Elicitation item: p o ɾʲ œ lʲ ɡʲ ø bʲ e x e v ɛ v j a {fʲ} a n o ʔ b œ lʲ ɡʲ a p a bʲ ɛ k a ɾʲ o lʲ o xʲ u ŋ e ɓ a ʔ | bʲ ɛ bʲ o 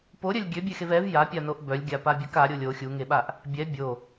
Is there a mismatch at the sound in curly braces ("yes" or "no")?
yes